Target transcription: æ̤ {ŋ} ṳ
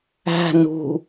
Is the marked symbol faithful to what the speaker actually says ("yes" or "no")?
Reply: no